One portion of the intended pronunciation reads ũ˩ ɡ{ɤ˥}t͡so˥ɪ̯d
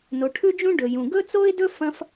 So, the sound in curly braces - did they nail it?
no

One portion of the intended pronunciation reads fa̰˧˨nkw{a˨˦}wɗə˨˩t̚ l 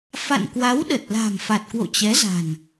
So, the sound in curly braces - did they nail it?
yes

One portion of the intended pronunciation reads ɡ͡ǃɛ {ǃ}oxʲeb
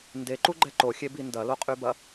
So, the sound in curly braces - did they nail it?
yes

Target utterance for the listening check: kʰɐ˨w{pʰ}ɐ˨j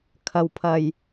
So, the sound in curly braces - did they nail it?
yes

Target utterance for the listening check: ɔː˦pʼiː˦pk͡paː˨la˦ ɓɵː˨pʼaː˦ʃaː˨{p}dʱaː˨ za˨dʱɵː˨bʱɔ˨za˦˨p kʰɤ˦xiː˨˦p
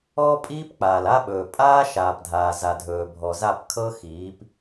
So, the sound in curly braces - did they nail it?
yes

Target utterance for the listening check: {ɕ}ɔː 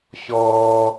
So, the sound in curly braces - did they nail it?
yes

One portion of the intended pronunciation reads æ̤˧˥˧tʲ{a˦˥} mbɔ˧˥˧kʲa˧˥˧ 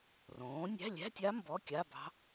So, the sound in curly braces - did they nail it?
yes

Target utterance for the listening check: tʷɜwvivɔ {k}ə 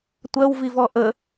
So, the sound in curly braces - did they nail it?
no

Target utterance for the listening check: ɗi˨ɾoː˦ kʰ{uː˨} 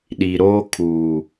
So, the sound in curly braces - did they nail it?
yes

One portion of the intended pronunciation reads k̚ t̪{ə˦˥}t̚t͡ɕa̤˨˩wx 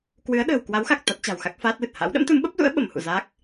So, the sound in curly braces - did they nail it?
no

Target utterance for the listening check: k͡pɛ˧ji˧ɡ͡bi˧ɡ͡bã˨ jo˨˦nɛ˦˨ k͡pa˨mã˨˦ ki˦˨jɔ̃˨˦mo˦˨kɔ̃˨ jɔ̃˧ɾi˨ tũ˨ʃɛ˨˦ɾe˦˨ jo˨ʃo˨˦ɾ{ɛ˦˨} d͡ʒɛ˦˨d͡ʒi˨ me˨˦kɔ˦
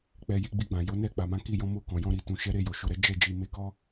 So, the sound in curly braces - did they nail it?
no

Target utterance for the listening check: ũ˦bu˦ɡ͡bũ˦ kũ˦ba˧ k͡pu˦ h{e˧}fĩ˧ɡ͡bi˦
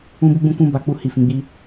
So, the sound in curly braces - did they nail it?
no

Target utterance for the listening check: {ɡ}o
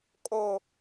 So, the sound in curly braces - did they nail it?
no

